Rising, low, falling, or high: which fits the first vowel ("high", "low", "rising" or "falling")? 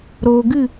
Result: low